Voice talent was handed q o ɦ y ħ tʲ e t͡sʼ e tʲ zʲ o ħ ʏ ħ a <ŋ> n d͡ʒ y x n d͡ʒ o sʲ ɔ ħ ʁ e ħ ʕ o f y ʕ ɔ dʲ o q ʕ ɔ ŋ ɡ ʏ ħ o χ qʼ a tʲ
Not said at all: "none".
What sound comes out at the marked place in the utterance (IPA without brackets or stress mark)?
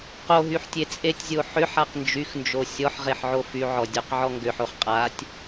q